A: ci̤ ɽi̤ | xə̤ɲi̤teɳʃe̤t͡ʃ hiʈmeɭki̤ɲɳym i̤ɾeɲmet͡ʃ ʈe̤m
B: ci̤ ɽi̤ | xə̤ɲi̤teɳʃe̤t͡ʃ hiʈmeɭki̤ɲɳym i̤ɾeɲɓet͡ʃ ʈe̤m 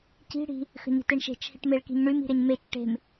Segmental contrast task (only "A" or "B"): A